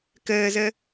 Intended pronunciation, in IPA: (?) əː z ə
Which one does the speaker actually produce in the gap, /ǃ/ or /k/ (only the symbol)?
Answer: k